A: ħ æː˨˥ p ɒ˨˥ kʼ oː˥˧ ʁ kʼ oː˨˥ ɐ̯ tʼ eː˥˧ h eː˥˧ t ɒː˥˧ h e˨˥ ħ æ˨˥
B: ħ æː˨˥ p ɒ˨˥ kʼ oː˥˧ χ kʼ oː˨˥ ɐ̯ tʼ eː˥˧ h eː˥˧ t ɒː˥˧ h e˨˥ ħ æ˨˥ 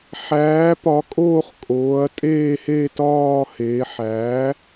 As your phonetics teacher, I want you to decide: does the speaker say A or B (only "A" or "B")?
B